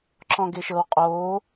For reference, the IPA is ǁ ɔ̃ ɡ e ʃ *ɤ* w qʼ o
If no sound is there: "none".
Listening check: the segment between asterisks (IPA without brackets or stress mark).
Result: ɤ